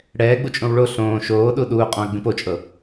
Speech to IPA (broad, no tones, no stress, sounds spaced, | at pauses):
ɽ ɛː ɡ͡b u t͡ʃʼ õ w ɭ o ɬ õː ʃ oː ɗ u ɗ uː qʼ ɔ̃ ɐ̯ ɡ͡b ĩ p o t͡ʃʼ ɤ